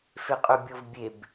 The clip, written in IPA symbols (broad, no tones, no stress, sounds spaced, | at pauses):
f e qʼ ø bʲ o v bʲ e b